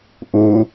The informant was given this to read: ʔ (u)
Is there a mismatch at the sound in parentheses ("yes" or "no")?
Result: yes